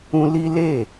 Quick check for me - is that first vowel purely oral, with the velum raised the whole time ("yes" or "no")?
no